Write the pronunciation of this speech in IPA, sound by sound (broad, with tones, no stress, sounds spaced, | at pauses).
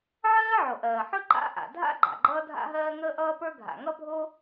ʕ ɜː˥ ʕ o˩ ʔ ɜː˩ ħ ɵ˥ ǃ a̰˥ ʔ a̰˩ dʱ a̰˥ ɡ͡ǃ a̰˩ ɡ͡ǃ ʌː˥ dʱ a̰˥ ɦ ɜː˥ ŋ əː˥ ʔ ʌː˥ p ə˞˥ ɡʱ a̰˩ ŋ ʌ˥ bʱ o˥